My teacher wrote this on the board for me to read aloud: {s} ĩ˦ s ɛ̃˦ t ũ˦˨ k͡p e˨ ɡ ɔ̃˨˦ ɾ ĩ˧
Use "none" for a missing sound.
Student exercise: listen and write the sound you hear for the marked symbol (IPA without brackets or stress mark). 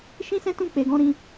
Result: ʃ